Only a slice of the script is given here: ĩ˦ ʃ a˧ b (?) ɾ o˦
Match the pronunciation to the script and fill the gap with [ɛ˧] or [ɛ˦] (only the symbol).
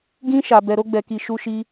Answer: ɛ˧